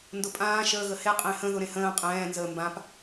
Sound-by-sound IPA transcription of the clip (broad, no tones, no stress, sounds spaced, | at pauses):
n d ʊ pʼ ãː ʃ əː ɣ ə h e qʼ ẽ h ə̃ ð ʊ ɾ ẽ h ə̃ː qʼ ɛ̃ː n z əː m b ã p